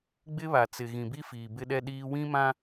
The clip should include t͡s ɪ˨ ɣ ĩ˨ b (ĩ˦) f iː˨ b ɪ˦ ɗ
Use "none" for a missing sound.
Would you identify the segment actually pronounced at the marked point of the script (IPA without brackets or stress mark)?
i˦